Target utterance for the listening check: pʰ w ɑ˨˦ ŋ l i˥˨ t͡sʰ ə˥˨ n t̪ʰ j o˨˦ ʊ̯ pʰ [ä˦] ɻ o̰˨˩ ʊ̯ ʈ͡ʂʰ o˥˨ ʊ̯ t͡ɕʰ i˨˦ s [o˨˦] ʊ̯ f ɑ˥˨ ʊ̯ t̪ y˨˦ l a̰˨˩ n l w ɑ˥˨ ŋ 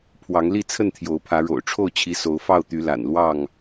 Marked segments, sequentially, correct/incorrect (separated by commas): incorrect, correct